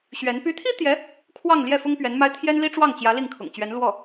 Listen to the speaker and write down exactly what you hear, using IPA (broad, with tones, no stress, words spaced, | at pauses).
ɕɥɛ˧˥n py˧˥t̪ʰi˥ t̪jɛ˧˥ | kʰwɑ˥˧ŋ ljɛ˥˩fʊ˥ŋ pɥɛ˧˥nma˥ɪ̯ t̪ʰjɛ˥nli˥ʈ͡ʂwɑ˥˩ŋt͡ɕjä˧˥ li˥˩ŋkʰʊ̰˨˩ŋt͡ɕɥɛ˧˥n lwɔ˥˩